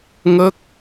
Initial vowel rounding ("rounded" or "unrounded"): unrounded